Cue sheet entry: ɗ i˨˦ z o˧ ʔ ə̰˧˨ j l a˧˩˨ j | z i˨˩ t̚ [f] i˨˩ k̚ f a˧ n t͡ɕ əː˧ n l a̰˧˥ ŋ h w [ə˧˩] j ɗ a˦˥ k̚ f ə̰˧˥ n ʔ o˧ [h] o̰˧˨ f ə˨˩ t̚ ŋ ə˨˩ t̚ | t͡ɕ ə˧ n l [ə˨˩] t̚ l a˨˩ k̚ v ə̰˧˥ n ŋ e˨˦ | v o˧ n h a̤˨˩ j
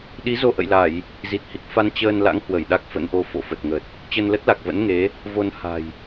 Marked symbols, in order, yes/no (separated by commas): no, yes, no, no